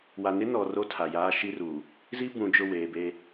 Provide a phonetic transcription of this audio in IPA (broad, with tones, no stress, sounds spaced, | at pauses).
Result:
w a˨ n ɪ˦ n ɔ˨ r o˦ tʰ a˨ j aː˦ ʃ i˦ r uː˨ | z i˦ b ũ˨ d͡ʒ ʊ˦˨ w eː˨ b eː˦